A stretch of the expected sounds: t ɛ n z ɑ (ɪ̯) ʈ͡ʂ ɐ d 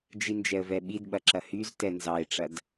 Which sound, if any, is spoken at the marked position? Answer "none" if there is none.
ɪ̯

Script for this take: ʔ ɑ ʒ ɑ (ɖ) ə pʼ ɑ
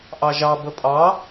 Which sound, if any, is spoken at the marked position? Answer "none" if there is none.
b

